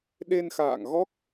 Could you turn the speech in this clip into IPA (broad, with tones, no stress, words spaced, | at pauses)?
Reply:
ɗe˧nxa̰ː˧˨ŋɣɔ˦˥k̚